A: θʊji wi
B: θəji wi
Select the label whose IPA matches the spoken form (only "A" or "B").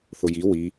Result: A